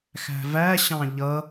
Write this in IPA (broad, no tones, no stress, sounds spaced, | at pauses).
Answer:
x æ̤ v æ ɕ ɑ̃ ʎ ʌ